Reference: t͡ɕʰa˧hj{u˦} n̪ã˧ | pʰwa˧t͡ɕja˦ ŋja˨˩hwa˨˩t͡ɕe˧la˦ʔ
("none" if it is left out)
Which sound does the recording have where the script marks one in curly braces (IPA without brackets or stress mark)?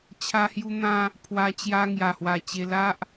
u˧